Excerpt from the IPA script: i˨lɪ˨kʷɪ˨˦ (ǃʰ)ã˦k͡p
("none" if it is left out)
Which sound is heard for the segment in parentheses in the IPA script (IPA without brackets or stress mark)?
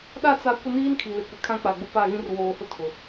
kʰ